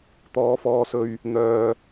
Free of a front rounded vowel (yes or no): no